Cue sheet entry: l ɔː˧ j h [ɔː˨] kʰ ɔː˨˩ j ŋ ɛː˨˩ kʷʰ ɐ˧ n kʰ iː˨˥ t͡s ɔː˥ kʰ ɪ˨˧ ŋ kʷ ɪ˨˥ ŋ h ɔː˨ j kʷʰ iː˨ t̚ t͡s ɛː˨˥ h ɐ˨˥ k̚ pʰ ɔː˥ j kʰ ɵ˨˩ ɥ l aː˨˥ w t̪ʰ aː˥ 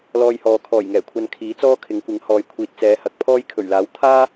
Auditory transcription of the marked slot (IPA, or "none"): ɔː˨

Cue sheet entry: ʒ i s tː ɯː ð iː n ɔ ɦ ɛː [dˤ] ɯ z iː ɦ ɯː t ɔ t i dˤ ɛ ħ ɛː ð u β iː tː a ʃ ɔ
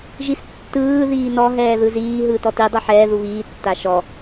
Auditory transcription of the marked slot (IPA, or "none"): ð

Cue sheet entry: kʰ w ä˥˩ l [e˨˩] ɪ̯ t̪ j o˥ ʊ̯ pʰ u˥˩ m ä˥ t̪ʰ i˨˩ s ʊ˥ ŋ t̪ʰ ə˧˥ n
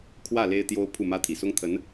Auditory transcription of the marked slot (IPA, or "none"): e˥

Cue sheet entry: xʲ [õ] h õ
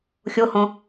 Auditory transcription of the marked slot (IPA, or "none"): o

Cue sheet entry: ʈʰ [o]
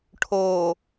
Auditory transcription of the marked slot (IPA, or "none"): oː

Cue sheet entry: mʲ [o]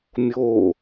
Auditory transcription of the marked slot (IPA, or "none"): o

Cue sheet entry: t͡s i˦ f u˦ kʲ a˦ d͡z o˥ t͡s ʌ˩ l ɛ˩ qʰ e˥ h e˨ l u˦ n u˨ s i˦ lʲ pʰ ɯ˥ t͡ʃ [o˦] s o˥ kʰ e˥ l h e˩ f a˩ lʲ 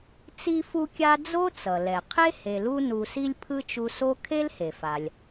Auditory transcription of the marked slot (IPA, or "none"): u˦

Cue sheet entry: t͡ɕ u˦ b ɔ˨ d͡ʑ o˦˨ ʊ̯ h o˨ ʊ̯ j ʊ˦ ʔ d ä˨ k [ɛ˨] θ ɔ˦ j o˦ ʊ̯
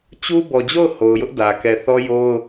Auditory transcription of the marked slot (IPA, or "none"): ɛ˨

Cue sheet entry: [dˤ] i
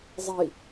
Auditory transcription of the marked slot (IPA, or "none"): zˤ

